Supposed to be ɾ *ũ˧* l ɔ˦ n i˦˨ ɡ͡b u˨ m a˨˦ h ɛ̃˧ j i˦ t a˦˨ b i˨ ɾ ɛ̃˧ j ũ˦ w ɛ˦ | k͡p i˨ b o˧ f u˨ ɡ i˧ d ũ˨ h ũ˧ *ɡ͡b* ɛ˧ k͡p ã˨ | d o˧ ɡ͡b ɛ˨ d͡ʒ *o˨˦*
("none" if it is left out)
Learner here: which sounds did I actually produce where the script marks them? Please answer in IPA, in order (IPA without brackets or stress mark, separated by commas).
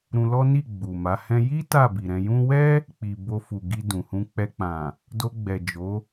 ũ˧, k͡p, o˨˦